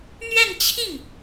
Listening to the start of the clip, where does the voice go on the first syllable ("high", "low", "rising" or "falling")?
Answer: falling